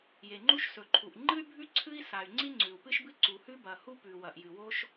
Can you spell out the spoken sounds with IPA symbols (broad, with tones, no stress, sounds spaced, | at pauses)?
j e˩ ŋ͡ǃ u˥ ʃ s ɵ˩ ǃʰ u˩ ʔ ŋ͡ǃ ɨ˥ y̯ bʱ ʉ˥ ǀʰ ɨ˥ i̯ s a˩ y̯ ŋ͡ǀ i˥ ŋ͡ǀ ʉ˩ u̯ p ɨ˥ ʃ b ɨ˥ ǀ u˩ h ʉ˥ b ɐ˩ h u˥ p ʉ˩ w ɐ˩ ʔ j ɨ˩ w o˥ ʃ